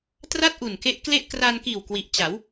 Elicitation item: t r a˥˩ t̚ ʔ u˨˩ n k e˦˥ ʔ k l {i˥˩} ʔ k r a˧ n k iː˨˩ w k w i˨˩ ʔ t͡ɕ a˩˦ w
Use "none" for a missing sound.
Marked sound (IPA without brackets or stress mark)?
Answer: e˥˩